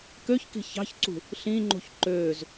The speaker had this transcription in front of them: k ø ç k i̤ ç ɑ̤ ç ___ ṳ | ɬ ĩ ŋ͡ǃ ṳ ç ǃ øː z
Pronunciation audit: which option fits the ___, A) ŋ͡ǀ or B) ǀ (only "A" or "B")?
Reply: B